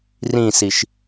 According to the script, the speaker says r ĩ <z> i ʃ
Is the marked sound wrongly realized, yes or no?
yes